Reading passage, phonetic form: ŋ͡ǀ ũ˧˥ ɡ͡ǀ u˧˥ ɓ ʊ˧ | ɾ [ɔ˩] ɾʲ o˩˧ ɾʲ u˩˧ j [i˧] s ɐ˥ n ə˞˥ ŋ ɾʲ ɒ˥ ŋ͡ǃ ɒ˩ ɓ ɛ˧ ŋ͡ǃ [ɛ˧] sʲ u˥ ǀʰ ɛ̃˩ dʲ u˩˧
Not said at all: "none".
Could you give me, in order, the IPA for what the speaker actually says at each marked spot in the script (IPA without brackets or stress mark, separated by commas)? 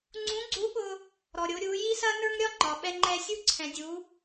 ɔ˩, i˥, ɛ˧